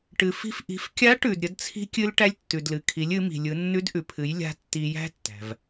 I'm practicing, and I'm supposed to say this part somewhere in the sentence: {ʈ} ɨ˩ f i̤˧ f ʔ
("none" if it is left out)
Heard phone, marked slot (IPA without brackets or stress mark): ʈ